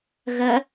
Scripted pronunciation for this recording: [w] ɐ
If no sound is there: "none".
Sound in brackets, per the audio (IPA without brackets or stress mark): ɣ